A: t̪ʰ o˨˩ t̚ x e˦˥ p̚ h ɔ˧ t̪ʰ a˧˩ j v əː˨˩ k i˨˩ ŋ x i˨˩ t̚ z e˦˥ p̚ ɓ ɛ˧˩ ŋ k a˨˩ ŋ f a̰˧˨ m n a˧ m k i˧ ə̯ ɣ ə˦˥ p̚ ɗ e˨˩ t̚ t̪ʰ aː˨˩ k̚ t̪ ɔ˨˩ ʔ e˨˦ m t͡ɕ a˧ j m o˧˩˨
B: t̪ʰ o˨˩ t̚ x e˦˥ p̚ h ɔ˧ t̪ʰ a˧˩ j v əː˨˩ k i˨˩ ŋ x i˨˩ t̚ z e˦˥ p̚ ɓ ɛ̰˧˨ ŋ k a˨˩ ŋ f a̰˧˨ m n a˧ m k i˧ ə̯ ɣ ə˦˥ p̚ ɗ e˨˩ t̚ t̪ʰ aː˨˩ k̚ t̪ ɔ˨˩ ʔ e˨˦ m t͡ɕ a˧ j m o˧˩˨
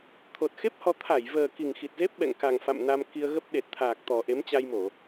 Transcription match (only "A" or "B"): B